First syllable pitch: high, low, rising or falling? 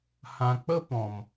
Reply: low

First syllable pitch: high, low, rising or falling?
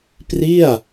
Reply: falling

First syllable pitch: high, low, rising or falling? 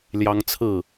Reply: high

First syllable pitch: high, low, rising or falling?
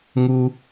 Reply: high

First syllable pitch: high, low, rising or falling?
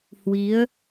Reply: rising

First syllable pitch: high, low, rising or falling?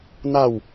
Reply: falling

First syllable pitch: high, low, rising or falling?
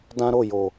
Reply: high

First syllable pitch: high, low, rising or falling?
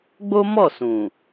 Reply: high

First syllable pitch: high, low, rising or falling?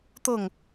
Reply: falling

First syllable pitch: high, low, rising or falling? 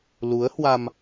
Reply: rising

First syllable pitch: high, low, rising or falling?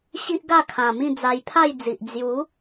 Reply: high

